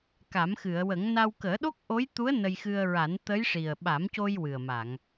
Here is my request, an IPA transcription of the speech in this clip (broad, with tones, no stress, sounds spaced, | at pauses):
k a˨˩˦ m x ɨ˨˩˨ ə̯ w ə˨˩˦ ŋ n a˧ w k əː˨˩˦ ɗ o˦˥ k̚ ʔ o˧˥ j t̪ u˧˥ ə̯ n ə˧ j x ɨ˧ ə̯ ɹ a˨˩˦ n t̪ ə˧˥ j ʂ i˨˩ ə̯ ɓ a˨˩˦ m c o˧ j w ɨ˨˩ ə̯ m a˨˩˨ ŋ